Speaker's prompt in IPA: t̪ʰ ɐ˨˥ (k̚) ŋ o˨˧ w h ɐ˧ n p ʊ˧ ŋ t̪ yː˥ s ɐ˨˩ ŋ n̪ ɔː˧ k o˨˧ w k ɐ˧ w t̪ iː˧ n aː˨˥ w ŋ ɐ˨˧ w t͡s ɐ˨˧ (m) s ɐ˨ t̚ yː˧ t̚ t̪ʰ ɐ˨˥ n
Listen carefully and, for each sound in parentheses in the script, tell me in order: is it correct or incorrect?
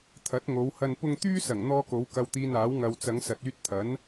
incorrect, incorrect

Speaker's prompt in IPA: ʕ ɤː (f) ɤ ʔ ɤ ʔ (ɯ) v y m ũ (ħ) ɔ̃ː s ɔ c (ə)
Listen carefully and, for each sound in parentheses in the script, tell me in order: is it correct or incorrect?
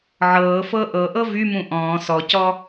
correct, incorrect, incorrect, incorrect

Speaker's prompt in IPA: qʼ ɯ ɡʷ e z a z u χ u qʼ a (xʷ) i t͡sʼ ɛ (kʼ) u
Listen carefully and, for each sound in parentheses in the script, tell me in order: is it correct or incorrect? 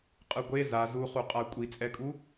incorrect, correct

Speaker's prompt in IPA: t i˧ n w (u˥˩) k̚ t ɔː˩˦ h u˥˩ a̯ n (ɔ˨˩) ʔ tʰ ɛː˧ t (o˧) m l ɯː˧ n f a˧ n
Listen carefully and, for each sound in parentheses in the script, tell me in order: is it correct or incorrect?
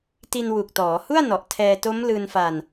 incorrect, correct, incorrect

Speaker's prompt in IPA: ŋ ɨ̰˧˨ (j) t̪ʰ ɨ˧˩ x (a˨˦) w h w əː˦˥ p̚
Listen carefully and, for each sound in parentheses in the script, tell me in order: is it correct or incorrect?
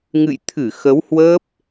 correct, incorrect

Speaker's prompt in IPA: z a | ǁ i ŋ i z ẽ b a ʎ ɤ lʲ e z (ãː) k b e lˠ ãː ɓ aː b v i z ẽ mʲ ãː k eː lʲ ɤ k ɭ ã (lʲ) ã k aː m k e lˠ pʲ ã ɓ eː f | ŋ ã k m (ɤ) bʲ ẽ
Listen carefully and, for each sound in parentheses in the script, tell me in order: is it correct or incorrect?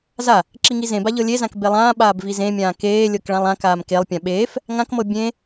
incorrect, incorrect, correct

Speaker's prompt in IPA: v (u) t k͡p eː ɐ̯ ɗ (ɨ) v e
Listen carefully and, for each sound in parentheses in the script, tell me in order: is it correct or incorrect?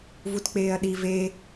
correct, incorrect

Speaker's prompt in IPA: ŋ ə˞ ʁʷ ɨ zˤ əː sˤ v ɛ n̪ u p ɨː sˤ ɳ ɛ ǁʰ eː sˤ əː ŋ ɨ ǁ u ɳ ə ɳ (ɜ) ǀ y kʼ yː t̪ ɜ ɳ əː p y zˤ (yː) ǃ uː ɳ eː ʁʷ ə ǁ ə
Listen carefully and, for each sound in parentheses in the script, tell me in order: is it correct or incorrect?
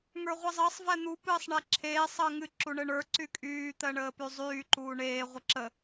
incorrect, correct

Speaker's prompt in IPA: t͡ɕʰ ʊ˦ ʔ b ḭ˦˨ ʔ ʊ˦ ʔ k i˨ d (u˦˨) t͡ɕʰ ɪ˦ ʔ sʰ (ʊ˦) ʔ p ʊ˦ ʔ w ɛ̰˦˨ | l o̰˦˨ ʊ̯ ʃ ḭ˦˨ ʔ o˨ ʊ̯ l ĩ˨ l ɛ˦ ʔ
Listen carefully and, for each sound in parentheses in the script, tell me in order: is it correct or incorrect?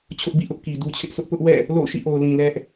incorrect, correct

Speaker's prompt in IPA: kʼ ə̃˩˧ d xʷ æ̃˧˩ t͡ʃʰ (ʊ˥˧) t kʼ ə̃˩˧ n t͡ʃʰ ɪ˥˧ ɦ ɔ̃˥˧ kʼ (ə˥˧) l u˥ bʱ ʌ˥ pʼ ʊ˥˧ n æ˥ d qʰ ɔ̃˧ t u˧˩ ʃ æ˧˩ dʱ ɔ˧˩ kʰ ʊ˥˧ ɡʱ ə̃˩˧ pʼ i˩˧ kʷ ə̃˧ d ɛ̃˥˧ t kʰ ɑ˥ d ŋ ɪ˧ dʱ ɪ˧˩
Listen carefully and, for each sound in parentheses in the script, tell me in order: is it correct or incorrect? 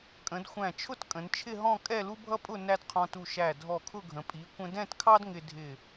correct, incorrect

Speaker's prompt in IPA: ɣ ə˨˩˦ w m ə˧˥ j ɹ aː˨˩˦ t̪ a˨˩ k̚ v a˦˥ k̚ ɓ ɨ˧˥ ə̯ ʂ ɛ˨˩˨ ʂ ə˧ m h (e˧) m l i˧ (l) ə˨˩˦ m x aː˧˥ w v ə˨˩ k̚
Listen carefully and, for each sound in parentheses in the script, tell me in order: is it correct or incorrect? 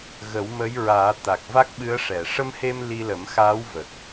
correct, correct

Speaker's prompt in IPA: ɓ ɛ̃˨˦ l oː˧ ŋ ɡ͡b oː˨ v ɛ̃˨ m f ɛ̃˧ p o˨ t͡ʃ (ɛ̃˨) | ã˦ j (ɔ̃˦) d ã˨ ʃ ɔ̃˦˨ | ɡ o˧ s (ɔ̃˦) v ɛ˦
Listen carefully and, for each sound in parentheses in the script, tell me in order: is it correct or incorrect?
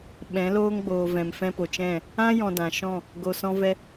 incorrect, incorrect, correct

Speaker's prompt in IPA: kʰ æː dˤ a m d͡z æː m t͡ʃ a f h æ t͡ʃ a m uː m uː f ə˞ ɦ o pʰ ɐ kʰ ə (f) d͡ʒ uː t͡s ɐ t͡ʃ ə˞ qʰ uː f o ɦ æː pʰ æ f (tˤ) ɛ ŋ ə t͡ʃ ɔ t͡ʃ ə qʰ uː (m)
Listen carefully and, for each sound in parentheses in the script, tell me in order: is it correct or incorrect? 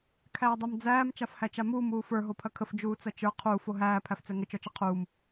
correct, incorrect, correct

